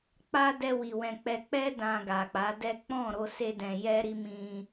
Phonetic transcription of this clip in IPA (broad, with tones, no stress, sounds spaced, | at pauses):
k͡p a˦ d ɛ˧ w i˨ w ɛ̃˨ k͡p ɛ˧ k͡p ɛ˦ d ã˧ ɡ a˨ k͡p a˨˦ d ɛ˦ k͡p ɔ̃˦˨ ɾ o˧ s e˧ d ɛ̃˨ j ɛ˧ ɾ i˧ m ĩ˧